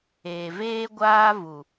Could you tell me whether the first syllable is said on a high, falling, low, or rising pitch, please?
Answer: low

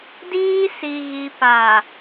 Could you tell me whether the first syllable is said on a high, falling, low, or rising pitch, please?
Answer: high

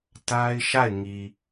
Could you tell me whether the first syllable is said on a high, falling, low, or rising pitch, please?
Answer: high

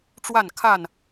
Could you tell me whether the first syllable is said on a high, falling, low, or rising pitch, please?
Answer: falling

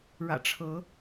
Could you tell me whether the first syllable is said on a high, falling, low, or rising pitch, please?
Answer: low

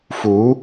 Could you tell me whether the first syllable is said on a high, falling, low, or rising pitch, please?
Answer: rising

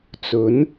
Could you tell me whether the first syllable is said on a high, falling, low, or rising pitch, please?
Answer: rising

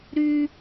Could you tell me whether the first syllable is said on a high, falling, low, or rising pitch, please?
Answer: high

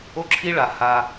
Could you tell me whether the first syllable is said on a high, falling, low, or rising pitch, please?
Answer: high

